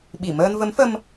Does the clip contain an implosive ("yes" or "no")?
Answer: yes